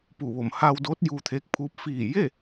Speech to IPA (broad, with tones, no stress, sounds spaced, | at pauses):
p uː˧˩ ʋ o˧˩ m h aː˧ w d oː˧˥ t̚ j uː˧ t̪ʰ eː˧˥ k̚ pʰ uː˧˥ p̚ f iː˧˩ j e˥˨